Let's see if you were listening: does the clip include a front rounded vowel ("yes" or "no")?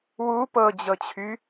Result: yes